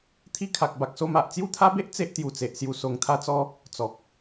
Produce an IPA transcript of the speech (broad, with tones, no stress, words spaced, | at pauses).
t̪ʰi˧kʰa˨k̚ ba˨k̚so˧ma˨ʔ t͡sju˦t̪ʰa˦be˦ʔ t͡se˦ʔ t̪ju˧t͡se˨ʔsju˧ so˧ŋt̪ʰa˥˧t͡sɔ˦ | t͡sɔ˨k̚